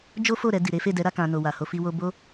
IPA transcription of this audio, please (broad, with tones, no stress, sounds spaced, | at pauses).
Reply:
d͡ʒ o˦ f o˦˨ ɾ ɛ˧ d i˨ ɾ e˨˦ f e˦˨ d ɛ˨˦ ɾ a˦ k ã˧ n o˨ w a˨ h o˧ f i˧ w o˧ b o˦